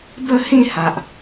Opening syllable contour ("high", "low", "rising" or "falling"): falling